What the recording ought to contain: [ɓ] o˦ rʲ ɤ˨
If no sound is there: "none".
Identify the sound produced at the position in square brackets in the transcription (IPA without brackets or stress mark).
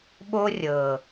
ɓ